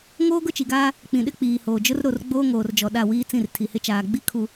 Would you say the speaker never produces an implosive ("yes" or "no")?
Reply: no